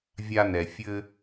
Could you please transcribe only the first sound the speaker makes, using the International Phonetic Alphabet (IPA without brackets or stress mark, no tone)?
vʲ